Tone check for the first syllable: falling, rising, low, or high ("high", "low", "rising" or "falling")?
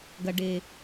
low